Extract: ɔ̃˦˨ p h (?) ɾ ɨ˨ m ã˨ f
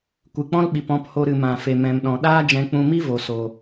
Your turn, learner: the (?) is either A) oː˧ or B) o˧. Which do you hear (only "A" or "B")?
B